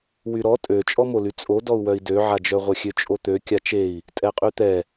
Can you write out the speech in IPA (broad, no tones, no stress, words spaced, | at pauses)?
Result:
wyɾɔ tʼøt͡ʃʼɔmoly t͡sʼodɔu̯ wœi̯døʕad͡ʒœ ʁʷœxʲøt͡ʃʼot̪ø kʲat͡ʃei̯ | tʼɛqʼyt̪ɛ